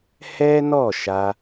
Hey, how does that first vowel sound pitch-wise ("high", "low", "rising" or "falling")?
high